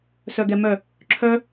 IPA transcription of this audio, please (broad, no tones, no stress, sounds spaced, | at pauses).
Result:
s œ ɡ ɛ m œ | ǁʰ œ